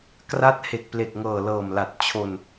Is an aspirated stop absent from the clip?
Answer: no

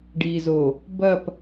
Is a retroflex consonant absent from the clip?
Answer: no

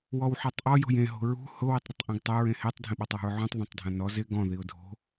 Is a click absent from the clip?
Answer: yes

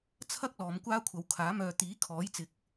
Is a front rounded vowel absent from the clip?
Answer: no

